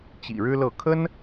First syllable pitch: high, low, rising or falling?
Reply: low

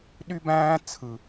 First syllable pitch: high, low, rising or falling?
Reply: high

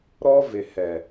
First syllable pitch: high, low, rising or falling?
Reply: high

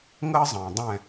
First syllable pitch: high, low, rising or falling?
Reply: high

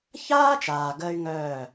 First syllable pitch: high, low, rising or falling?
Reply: high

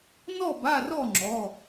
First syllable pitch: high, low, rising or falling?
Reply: falling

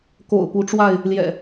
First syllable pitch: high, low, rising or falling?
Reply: low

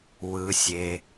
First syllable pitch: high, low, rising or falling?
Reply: low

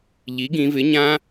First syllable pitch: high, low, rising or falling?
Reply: rising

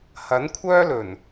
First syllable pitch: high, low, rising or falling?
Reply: rising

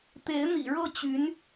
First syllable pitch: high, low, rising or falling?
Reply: rising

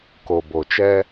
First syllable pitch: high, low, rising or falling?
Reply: low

